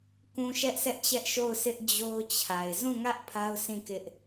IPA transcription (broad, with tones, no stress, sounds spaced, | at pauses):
k ũ˨ ʃ ɛ˦ ʔ s ɛ˦ ʔ t͡ɕ ɛ˦ ʔ ʃ o˦˨ ʊ̯ s ɪ˦ ʔ d͡ʑ o˦ ʊ̯ t͡ɕʰ a˨ ɪ̯ z ũ˦˨ ŋ ä˦ ʔ pʰ a˦ ʊ̯ s ĩ˦˨ k ɪ˦ ʔ